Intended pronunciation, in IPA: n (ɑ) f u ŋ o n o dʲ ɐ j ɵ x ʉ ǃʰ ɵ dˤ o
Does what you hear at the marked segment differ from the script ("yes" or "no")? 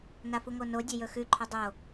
yes